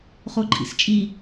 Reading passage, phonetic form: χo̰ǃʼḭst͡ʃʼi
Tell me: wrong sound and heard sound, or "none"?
o̰ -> o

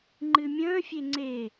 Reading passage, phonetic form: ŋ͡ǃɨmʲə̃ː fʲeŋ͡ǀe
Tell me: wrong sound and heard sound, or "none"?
none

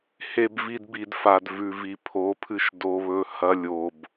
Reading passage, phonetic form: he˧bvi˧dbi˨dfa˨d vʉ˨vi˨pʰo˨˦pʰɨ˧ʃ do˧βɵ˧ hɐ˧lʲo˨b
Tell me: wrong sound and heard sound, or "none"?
none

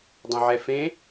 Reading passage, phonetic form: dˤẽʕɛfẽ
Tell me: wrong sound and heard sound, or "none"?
none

